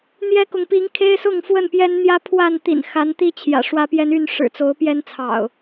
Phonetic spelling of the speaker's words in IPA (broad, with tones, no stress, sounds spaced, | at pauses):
n̪ j ɛ˦ k ʊ˨ ŋ p i˨˦ ŋ kʰ e˦ ɪ̯ s ʊ˥˨ ŋ f w ə˥˨ n p j ɛ˦ n n̪ j ä˦ pʰ w a˥˨ n t̪ ḭ˨˩ n x a˨˦ n t̪ i˦ t͡ɕʰ j ä̰˨˩ ʂ w ä˦ p j ɛ˦ n y˥˨ n ʂ ɻ̩˨˩ t͡s o˨˦ ʊ̯ p j ɛ˦ n t͡sʰ ɑ̰˨˩ ʊ̯